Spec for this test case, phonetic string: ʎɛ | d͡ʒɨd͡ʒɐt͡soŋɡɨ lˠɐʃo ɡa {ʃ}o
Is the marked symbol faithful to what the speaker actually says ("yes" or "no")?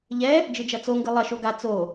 no